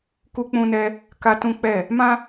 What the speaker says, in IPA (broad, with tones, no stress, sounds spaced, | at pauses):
k u˦ k͡p ũ˦ n ɛ˦ | k a˦ t ũ˦ k͡p ɛ˦˨ | m ã˦